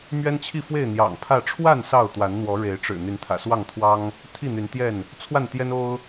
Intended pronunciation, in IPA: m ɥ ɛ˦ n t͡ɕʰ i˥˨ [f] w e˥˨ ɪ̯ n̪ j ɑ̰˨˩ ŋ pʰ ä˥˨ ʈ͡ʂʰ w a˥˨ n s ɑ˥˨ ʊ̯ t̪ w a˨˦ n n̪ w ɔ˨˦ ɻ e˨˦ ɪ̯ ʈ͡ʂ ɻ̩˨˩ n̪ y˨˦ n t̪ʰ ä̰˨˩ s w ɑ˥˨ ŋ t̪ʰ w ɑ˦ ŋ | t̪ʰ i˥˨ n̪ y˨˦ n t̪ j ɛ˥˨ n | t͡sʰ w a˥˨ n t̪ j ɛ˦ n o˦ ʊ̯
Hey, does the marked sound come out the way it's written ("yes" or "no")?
yes